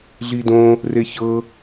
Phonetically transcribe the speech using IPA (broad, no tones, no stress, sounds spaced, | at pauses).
ɮ i d õ | r e ç ɤ